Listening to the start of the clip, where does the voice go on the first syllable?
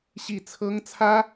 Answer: falling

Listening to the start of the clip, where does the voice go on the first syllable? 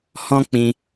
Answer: high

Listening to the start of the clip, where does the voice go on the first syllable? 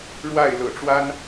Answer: falling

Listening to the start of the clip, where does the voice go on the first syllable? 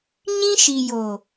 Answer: high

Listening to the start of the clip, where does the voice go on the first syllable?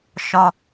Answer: high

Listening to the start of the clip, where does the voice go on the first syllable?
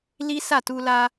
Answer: high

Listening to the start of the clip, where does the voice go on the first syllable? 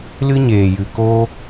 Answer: high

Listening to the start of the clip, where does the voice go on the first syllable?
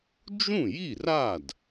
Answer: falling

